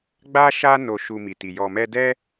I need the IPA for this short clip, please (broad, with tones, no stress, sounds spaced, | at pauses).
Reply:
ɡ͡b a˦ ʃ a˦ n o˧ ʃ u˧ m i˨ t i˨ j ɔ˨ m ɛ˧ d ɛ˦